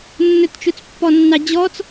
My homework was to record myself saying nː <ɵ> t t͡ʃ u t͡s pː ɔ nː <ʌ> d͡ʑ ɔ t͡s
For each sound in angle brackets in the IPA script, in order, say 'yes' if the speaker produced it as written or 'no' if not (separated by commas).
yes, no